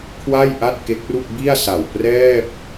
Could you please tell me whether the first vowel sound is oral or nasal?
oral